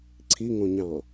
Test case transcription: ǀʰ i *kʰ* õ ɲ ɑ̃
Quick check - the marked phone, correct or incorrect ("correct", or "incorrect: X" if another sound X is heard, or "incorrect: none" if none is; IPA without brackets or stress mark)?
incorrect: ŋ